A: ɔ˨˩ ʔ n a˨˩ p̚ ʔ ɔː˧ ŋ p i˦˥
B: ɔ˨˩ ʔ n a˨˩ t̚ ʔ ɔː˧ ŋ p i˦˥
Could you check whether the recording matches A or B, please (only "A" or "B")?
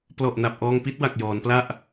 A